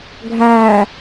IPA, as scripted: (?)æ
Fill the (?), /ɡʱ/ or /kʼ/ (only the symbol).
ɡʱ